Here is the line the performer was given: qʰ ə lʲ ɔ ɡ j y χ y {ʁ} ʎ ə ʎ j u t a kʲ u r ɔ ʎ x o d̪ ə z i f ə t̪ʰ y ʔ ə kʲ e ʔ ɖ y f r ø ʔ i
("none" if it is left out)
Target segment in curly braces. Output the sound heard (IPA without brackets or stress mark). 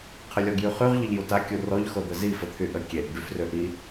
ʁ